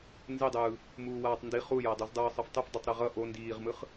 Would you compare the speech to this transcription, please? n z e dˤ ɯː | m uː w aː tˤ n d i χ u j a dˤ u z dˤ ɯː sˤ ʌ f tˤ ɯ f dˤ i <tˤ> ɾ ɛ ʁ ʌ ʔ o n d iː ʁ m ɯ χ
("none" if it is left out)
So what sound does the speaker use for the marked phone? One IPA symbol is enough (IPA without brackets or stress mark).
tˤ